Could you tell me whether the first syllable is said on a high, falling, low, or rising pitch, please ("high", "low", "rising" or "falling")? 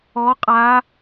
rising